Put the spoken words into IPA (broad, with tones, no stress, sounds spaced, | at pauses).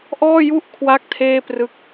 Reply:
ʔ ɔː˥˩ j u˥˩ ʔ kʰ w a˦˥ k̚ tʰ eː˥˩ p r ɯ˦˥ k̚